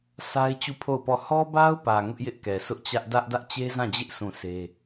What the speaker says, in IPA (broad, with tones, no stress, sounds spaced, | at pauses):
sʰ a˦ ɪ̯ t͡ɕ u˦˨ pʰ o˦˨ ʊ̯ p ɔ˦˨ h ɔ˦ b a˦ ʊ̯ p ä˨ ŋ ʊ˦ ʔ j ɪ˦ ʔ k ɛ˨ s ʊ˦ ʔ t͡ɕ ä˦ ʔ d ä˦ ʔ d ä˦ ʔ t͡ɕ e˦ z ã˦˨ d͡ʑ ɪ˦ ʔ sʰ ũ˦˨ sʰ e˦